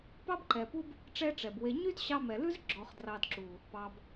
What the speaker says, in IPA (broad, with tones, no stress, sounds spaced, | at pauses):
p ɑ˦ b ǃ ɛ˨ p u˦ b | ʈ͡ʂ ɛ˦ ʈ͡ʂ ɛ˨ b w e˧ ɲ y˦ d ɕ ɑ˧ m ɛ˨ l ʉ˦ z ɡ͡ǁ ɔ˧ χ d r ɑ˧ d ǁ u˨ | p ɑ˨ b